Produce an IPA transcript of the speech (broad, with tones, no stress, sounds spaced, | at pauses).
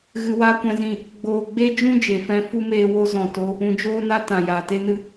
ɣ ɨ˧ w aː˦ kʷ ɛ̃˧ z ĩ˦˨ | ɡ͡b oː˧ ɡ͡b e˦ d͡ʒ ũ˦ d͡ʒ e˨ f ɛ̃˧ f u˦ m eː˧ w o˧ z ɔ̃˨ t o˧ | ũ˧ d͡ʒ oː˦ n a˦ t ã˨ j aː˨ t e˧ n ɨ˧